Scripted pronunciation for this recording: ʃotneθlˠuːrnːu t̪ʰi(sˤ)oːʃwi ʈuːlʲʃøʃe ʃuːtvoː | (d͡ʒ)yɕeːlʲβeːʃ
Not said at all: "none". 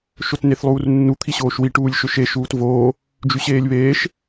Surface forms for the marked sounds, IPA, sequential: ɕ, d͡ʒ

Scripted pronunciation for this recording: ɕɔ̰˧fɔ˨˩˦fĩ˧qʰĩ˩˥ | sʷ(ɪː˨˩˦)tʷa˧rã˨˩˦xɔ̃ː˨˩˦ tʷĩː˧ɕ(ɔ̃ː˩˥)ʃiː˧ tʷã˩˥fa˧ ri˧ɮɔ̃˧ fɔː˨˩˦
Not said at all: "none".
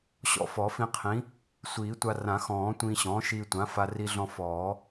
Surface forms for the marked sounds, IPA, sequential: iː˨˩˦, ɔ̃ː˩˥

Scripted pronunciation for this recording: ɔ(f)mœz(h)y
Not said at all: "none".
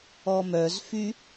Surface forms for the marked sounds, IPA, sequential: none, f

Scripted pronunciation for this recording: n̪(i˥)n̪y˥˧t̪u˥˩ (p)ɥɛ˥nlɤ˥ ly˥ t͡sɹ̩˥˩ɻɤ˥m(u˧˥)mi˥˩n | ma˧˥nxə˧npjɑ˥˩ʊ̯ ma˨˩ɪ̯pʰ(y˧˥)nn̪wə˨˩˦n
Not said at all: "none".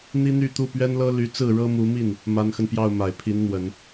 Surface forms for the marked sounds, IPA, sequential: i˥, p, u˧˥, i˧˥

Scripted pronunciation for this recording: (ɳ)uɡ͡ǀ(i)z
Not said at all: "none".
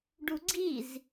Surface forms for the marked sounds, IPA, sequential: ɖ, i

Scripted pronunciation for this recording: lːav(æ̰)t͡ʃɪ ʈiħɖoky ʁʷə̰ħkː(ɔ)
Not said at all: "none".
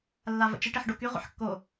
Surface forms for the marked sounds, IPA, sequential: ə̰, o

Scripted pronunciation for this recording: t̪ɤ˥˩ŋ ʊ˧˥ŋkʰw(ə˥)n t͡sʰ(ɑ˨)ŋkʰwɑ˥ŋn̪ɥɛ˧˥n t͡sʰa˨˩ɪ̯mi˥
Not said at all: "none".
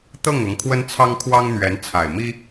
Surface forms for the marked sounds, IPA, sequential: ə˥, ɑ˥

